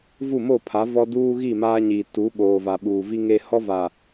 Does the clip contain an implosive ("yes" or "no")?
yes